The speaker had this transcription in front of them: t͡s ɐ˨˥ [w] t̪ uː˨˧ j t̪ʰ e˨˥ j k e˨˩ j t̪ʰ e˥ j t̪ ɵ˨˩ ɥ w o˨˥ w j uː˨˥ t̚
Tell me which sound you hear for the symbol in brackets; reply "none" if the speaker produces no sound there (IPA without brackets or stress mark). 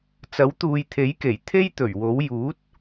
w